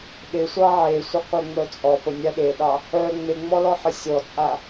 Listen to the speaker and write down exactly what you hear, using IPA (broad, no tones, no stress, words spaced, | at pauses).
ɗɪsʷɑ ʕesʷɪqʷeŋ͡mœ t͡sʼɔ pənʲa ɗeɗɑ | œ ŋ͡meŋ͡mɔlɔħə sʲɔt͡sʼa